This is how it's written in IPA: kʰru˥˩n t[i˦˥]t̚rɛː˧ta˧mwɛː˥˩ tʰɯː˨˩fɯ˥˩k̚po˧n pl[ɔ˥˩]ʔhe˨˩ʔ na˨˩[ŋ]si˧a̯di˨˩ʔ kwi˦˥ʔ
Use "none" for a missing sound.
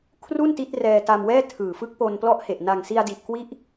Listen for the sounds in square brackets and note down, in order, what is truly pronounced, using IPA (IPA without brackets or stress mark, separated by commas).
i˦˥, ɔ˥˩, ŋ